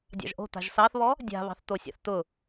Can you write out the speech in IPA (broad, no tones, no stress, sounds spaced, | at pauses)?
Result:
dʲ ɑ̰ ʒ ʔ o̤ t a̤ ʒ s ɑ θ β ɔ | dʲ a̤ β ɑ̤ θ t o sʲ ɑ̰ θ t ʊ